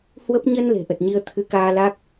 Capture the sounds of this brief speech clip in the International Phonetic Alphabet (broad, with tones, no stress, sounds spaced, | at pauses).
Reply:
h w ə˦˥ p̚ ɲ ə˧ n l e̤˨˩ ʔ ə˨˩ t̚ ɲ i˧ ə̯ t̪ʰ ɨ˨˦ k aː˧ l a˦˥ k̚